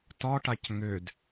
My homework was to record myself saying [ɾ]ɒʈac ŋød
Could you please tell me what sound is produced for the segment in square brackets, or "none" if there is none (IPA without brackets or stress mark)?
t